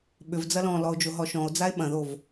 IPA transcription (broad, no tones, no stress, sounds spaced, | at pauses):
ɓ ʏ v d͡z ɐ l ɔ̃ l ɔ o̯ d͡ʒ o ɦ ɔ ʃ ɔ̃ o̯ d͡z a e̯ ɓ ɐ̃ ð o v